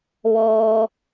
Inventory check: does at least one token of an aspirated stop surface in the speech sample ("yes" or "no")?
no